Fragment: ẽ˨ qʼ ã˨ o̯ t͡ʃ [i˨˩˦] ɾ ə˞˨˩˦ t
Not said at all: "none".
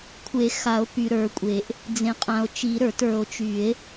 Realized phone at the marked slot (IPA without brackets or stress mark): i˨˩˦